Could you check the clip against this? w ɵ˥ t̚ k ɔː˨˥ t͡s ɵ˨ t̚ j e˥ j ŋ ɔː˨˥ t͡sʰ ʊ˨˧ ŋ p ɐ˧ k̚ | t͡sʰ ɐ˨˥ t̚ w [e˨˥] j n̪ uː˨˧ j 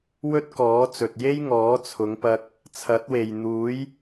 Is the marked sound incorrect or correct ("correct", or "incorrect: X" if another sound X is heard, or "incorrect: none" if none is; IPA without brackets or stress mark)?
incorrect: e˨